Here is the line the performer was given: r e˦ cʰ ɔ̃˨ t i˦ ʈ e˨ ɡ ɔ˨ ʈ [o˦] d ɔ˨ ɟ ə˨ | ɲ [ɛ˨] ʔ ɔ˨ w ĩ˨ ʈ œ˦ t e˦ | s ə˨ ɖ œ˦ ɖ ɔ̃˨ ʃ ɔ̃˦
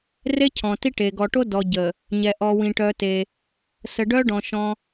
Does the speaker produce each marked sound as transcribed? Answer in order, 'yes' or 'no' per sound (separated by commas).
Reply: yes, yes